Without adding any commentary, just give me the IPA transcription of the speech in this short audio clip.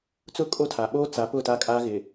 t͡s ʊ˦˨ kʼ o˦ tʰ a˨ ɓ oː˦ t͡s a˨˦ p ʊ˦˨ t a˦ kʼ aː˦ ɣ ɪ˨

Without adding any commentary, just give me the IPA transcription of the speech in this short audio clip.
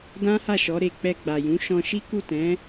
d ã˦ h a˦˨ ʃ ɔ˨˦ ɾ e˧ k͡p ɛ˧ ɡ͡b a˨ j ũ˨˦ ʃ ɔ̃˧ ʃ i˦ k u˦˨ t ɛ̃˨˦

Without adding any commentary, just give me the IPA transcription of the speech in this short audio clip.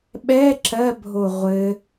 ɓ ɛ ǁ ɜ bʱ o ʁʷ ɘ

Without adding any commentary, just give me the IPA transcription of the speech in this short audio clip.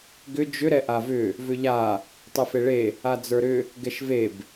ɡ ʏ d͡ʒ ʏ ɾ ɛ ʔ a v ʏ | v ʏ ʎ a | tˤ ɛ f e ɭ e | a d͡z ə˞ ɾ ʏ | ɡ ɛ ʃ v e b

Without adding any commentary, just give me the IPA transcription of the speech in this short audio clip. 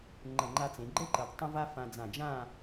ŋ͡ǃ ə˧˩ ŋ͡ǃ a˧ t͡s ẽ˩˧ ɡ͡ǃ ə˥ ǃ ə˩˧ d tˤ ə̃˥ v a˥ f ã˧ d͡z ã˧˩ d͡ʒ ã˥˧

